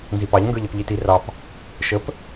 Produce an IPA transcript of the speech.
nzipɑʎ ŋɡə˞ʎʌpʎiti rɑp | ʃəp

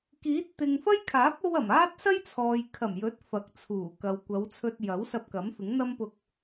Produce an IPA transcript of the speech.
kiː˨˥t̚ t̪ɪ˨ŋfɐ˥jkʰaː˨˥p̚ o˧wɐ˨˩m aː˥t̚sɐ˥jt͡sʰɔː˨j kʰɐ˨˩mjɵ˨˥t̚ fɐ˨˥k̚t͡sʰuː˨˩kɐ˨w kʷɐ˨˧wt͡sʰɵ˧t̚jɐ˨˥w sɐ˧p̚kɐ˨˥mfɪ˨˥ŋ n̪ɐ˥mpʊ˧k̚

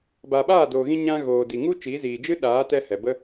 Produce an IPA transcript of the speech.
ba˨ɓaː˦˨doː˨ɣĩ˧ ɲã˧ ɣoː˨di˨ŋu˦ t͡ʃi˨˦ziː˨ d͡ʒɨ˦ɗaː˨˦ tɛ˧ hɛ˨bə˦

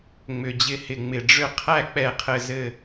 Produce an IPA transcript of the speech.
ŋ͡mʏ˩d͡ʑɪ˧˩ hɪ˩ŋ͡mɪ˩ɖ͡ʐʏ˥˩ qʰæ˥˩k͡pɛ˧˩qʰɘ˧˩ zɘ˧˩

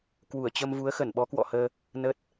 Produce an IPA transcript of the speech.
kwu˧˩ə̯t͡ɕə˧mvu˨˦ə̯ xə˧˩n ɓɔ˨˦kwɔ̰˧˨həː˧ | nə˦˥t̚

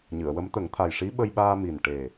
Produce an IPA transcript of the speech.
ɲɨ˨˩˨ə̯wə˧˥m t̪ə˨˩˦ŋt̪ʰa˨˩jʂi˧˥ ɓə˧jɓaː˧mi˨˩n ʈe˨˩

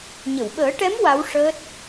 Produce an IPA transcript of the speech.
ɲə˨˩˨wɓəː˨˩˦ʈɛ˧˥m wa˧˥wʂəː˦˥t̚

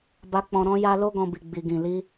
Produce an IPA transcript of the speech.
ba˨k͡pɔ̃˨ ɾɔ̃˧ ja˧lo˦ ɡɔ̃˧bi˨ ɡ͡bi˨ɡĩ˨ li˧

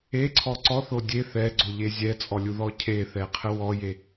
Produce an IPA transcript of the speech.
eǀʰɔ ǀɔθo dʲe θɛɡ͡ǀoʎe zʲɛt͡sʼɔlʲuðɔ cʰeθɛqʰə wɔje

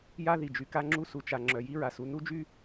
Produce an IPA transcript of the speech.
ja˥ði˩d͡ʒy˩ ka˥ŋ͡ǁu˥ su˩t͡ʃa˩ ŋ͡ǁœ˩ji˥ɹa˩su˩ nu˥d͡ʒy˥

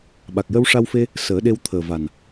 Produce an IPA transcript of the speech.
ɓa˨˩k̚jə˧w ʂa˧wfe˧ | səː˨˩˦ɗe˧wt̪ʰəː˨˩va˨˩n

